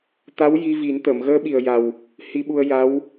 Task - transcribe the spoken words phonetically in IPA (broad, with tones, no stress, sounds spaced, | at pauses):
t̪ a˧˥ w j i˧ v i˨˩˦ n t̪ əː˨˩˨ m ɣ əː˧˥ ɓ i˨˩ ə̯ j a˨˩ w | h i˧ ɓ u˧ ə̯ j a˧˥ w